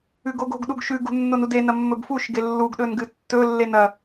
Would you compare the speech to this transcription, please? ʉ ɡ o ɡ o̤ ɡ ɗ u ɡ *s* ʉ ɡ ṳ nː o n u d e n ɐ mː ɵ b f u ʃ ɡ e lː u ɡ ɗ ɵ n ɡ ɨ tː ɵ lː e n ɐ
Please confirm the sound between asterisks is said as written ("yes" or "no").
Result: no